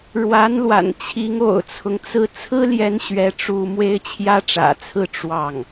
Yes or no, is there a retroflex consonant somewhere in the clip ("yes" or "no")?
yes